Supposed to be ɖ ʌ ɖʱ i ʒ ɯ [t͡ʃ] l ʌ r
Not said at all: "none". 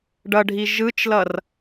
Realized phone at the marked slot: t͡ʃ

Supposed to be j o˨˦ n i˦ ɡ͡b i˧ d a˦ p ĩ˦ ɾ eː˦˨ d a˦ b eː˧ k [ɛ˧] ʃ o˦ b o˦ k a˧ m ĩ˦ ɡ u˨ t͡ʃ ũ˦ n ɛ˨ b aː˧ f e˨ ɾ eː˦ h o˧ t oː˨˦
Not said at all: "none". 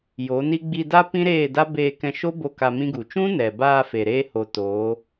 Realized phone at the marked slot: ɛ̃˧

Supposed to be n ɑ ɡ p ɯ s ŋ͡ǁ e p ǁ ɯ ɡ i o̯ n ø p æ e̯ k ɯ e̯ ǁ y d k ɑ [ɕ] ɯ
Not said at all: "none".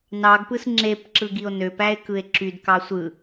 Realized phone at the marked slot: sʷ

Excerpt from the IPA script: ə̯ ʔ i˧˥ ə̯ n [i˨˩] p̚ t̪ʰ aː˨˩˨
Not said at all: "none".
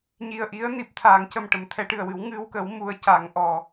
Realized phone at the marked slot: i˨˩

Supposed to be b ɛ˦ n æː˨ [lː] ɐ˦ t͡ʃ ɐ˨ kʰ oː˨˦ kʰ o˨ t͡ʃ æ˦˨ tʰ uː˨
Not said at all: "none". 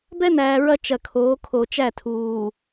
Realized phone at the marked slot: ɹ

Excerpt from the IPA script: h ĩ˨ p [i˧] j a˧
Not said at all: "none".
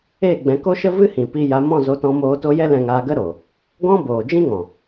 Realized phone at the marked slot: i˧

